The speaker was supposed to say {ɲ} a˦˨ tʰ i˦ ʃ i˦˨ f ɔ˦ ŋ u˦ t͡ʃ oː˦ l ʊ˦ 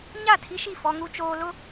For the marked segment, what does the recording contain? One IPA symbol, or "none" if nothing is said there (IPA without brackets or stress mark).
ɲ